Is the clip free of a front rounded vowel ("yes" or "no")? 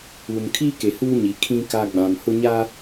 yes